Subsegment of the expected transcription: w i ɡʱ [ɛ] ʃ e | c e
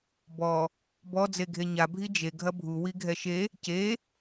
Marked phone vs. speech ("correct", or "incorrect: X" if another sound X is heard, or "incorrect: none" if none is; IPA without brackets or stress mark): correct